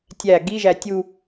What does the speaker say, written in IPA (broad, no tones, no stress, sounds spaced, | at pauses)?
tʲ æ ɡ i ʒ æ tʲ u